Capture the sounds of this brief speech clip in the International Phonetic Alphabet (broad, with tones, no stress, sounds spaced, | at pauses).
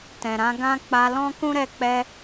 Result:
t ɛ̃˨ ɾ ã˧ ɡ ã˦ k͡p a˧ l ɔ̃˦ k ũ˦ ɾ ɛ˦˨ k͡p ɛ˧